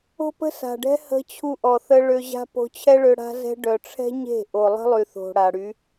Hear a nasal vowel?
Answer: no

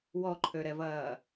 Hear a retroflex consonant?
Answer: no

